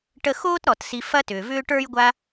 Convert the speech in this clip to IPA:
ʈ ə˦ x oː˥ t ɾ ɔ˩ t s i˨ f ɐ˦ t ʏː˩ v ʏː˦ ʈ ə˞˥ j ɡʷ a˦

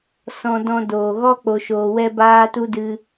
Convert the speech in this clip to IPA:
s ɔ̃˧ d ɔ̃˧ d oː˨ ɣ ɔ˦ k͡p o˨ ʃ oː˨ w ɛ˧ b aː˦ t u˦ d ɨ˧

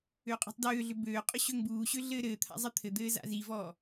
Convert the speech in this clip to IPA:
ø qʼ ṳ tˤ d øː ɮ ʏ b øː qʼ ʏ ɕ ø ŋ b uː ɕ ø ɮ ɘː ɾ ɘː t̪ʰ a̰ zˤ ɘ t̪ʰ ɘ d̪ ɘː z a̰ z i v ɔː

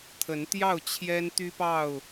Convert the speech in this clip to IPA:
t̪ʰ ə˨˦ n t̪ j ɑ˥˨ ʊ̯ t͡ɕʰ j ɛ˦ n t̪ y˦ p ɑ˥˨ ʊ̯

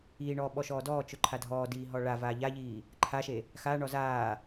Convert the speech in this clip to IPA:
iː ɳ ɔː ɓ ɔ ʃ ɔː d ɔː t͡ʃ ʊ ǃʰ a dʱ ɔː d iː ɦ ɔ ɭ a v aː ʎ a ʎ iː | ǃʰ a ʃ e | x aː ɳ ɔ z aː

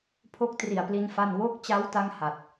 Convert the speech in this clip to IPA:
pʰ o˦˥ k̚ t r i˨˩ a̯ p l i˧ n f a˥˩ n w o˦˥ k̚ t͡ɕ a˦˥ w t a˥˩ ŋ h a˨˩ t̚

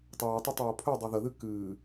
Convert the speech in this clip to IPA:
tˤ œː tˤ ɛ tˤ oː pʰ ø dˤ ɛ ð ə ð ɨ k ɨː

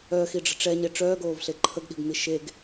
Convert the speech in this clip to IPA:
œ x i ɖ͡ʐ ə̤ ʈ͡ʂ ɛ ɲ e ʈ͡ʂ œː ɡ oː v ɬ e ǃʰ ə ɡ ɗ i̤ ɡ n̪ i ʃ e ɡ

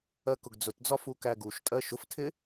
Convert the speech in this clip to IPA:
ɜ k ʊ ɡ d͡z ʊ t d͡z ɒ f u k æ ɡ u ʃ tʼ ɜ ʃ ʊ f tʰ ɪ

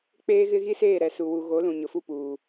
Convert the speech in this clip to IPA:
k͡p eː˦ ɣ ɪ˦ ɣ i˦ s eː˦˨ ɾ ɛ˨ s u˨ w u˨ ɣ o˨˦ l ũ˨ ɲ ʊ˨ f u˦˨ p uː˨

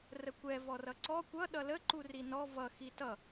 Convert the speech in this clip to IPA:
r ə kʷ ɛ v ɔ r ʌ ǀ ɔ kʷ ʌ ɗ ʌ l ə ǃ u r i n ɔ v ʌ x i t ʌ

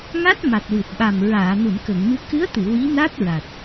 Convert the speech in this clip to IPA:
ŋ a˦˥ t̚ m a˨˩ t̚ w ɨ˨˩ t̚ ɓ a˨˩ m ɹ aː˨˩˨ n u˨˩˨ n k ə˨˩˨ ŋ m ɨ˧ k ɨ˧˥ ə̯ t̪ ɨ˨˩˨ w i˧˥ n a˦˥ t̚ ɹ a˨˩ t̚

